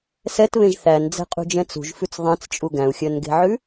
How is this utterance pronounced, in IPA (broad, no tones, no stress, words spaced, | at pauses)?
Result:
sɛtβẽʒ θænd͡zɛ̤qʼṳd͡ʒɛ̃ t͡sṳʒfʉt͡s ðˤɛ̃t͡st͡ʃʼu ɡæ̃u̯xʲœnɡe̤ʕʉ